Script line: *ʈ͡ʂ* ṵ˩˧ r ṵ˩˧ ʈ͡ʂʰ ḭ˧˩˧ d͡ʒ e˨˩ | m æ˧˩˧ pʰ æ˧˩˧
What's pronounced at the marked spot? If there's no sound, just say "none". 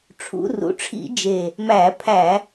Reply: ʈ͡ʂʰ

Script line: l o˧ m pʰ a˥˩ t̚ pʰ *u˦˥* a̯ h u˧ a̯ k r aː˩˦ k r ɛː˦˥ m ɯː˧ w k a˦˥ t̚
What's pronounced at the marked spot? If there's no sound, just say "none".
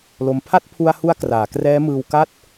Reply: u˧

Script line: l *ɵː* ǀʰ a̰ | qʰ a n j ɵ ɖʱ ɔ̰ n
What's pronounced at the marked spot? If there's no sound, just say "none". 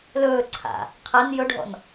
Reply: ɵː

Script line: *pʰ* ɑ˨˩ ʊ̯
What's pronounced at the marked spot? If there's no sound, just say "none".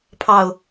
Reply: pʰ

